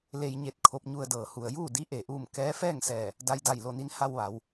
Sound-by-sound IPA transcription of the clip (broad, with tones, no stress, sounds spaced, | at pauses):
l e˧ j ɲ e˧ t̚ kʰ o˧ p̚ ɲ u˧ ə̯ d ɤː˩ h u˩ ə̯ j uː˥˨ d i˧˥ ʔ e˩ ʔ uː˥˨ m k ɛː˧˥ f ɛː˥˨ ŋ s ɛː˧˩ | d a˧ j d a˧˩ j l o˥˨ n i˧˥ n h a˧ w ʋ a˩˧ w